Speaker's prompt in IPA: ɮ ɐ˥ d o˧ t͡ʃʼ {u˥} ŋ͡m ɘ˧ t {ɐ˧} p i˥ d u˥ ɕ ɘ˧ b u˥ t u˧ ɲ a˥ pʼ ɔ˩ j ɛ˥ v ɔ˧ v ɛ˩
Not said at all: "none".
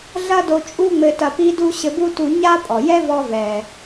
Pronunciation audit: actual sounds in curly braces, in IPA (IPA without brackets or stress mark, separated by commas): u˥, ɐ˧